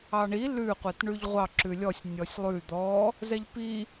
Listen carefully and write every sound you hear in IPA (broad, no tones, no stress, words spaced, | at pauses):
ɑɳi lʉ qʷɛtɳʉʎʁʷɑ ǁʉlʲɔsʲ nʲɔsʲlˠʉ d̪ɔ | zɛʎpi